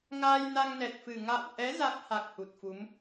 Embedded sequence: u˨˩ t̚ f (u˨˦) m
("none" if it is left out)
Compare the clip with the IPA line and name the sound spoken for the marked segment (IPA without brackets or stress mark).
u˨˦